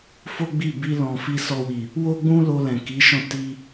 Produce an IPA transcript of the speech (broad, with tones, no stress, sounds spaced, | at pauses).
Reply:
f o˦ ɡ͡b i˦˨ b i˧ l ɔ̃˨ f i˧ s ɔ˧ w i˨ | w o˦ ɡ͡b ũ˦ l o˧ l ɛ̃˨ k i˨˦ ʃ ɔ̃˦˨ t i˧